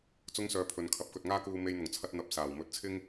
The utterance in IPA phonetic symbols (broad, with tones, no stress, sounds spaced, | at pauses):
t͡s ʊ˥ ŋ s œː˧ pʰ ɵ˨ n kʰ ɐ˨˥ p̚ k ɵ˨ t̚ ŋ aː˥ k uː˧ m e˧ j n̪ ʊ˨˩ ŋ t͡sʰ ɐ˧ t̚ n̪ ɐ˧ p̚ s aː˨˩ w m ɵ˨˥ t̚ t͡sʰ ɪ˥ ŋ